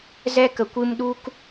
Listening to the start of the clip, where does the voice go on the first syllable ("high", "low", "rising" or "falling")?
high